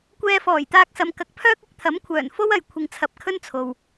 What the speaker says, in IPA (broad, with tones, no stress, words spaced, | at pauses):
kʷɛː˧fɔː˨˩jt̪aː˧k̚sɐ˨m kɐ˨˥k̚pʰœː˥k̚ ɪ˨˥k̚t̪ʰɐ˨˥mkʷʰœː˨˩n fo˥wɐ˨j kʷʰɪ˨ŋt͡sʰɐ˨˥p̚ kʰɵ˥nt͡sʰo˨w